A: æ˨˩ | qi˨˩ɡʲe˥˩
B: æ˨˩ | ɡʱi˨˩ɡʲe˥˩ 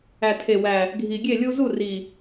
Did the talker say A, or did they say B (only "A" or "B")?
B